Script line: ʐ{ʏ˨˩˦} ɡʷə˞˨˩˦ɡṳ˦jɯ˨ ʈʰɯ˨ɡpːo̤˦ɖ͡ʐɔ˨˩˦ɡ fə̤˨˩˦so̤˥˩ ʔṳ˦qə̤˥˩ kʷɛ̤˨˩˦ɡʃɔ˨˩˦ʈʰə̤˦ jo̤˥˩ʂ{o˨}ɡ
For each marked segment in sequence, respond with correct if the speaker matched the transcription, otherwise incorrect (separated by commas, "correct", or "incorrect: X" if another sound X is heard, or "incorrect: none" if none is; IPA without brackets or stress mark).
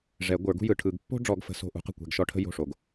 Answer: incorrect: ɛ˨˩˦, correct